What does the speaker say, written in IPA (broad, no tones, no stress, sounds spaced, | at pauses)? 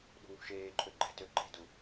ɗ ṳ w ṳ ʃ eː ǃʰ ø ɡ͡ǃ ɛ̤ t ø ǃ e̤ d u